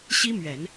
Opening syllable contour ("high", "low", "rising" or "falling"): high